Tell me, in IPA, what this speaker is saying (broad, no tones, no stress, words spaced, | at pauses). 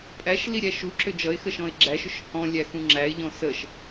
pʼæʃli ɾʲæʃuǁʏ d͡ʒʌɪ̯xə ʃɔ̃ɪ̯ɡ͡ǁæʃʏʃ hɔ̃lʲæ xũŋ͡ǁæɪ̯ʎɔ̃ səʃ